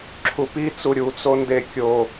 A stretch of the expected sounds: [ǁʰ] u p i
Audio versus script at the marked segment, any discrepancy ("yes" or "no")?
no